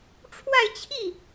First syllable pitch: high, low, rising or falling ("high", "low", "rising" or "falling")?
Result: falling